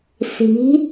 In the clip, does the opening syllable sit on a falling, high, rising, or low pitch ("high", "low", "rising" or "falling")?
rising